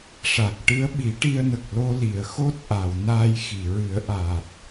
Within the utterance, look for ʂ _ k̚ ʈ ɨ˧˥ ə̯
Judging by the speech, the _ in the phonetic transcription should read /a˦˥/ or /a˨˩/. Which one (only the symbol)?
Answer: a˨˩